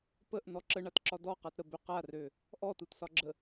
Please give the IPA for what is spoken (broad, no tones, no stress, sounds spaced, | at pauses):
p ə ʔ n ɔ ǁ ə ɳ a t ǁ ɒ d ɔ q a t ɾ ə b ø q a r ø | ʔ ɔ t u t s ɒ ɡ͡ǁ ə